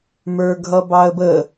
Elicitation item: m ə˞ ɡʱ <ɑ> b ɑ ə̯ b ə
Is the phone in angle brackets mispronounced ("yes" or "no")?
yes